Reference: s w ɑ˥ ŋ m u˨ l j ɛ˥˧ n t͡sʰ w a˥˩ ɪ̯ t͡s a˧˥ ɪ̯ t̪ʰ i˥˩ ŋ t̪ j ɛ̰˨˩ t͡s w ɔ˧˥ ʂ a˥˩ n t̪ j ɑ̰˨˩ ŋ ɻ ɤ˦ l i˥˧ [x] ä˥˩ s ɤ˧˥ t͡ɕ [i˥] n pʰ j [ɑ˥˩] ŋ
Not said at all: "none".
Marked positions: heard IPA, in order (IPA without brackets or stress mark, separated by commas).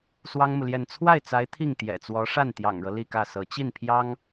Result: k, i˥˩, ɑ˥